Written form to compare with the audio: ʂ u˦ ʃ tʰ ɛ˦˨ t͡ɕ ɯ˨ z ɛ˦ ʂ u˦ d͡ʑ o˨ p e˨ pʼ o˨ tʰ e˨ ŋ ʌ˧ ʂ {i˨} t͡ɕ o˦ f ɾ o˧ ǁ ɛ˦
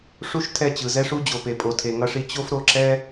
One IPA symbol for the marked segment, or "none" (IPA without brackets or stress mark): i˧